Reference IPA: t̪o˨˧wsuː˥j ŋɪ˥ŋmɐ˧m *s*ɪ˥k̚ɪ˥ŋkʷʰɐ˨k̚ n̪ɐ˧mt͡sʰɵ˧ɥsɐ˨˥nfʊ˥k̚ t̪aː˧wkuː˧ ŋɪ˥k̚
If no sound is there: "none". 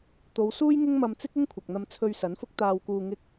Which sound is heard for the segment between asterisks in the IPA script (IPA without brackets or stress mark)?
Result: t͡s